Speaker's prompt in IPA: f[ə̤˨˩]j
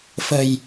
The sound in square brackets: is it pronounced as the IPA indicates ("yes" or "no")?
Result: yes